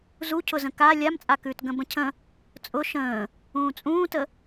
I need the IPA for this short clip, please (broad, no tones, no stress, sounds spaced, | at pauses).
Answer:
z u cʰ ʊ z ə̃ k a lʲ a m t͡sʼ a k ʉː t ɡ ə̃ b ə̃ cʰ ə̃ | t͡sʼ ʊ ʃ ə̃ː | ũː t͡sʼ ũː t ə